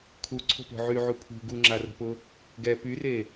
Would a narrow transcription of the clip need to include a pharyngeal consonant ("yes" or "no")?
yes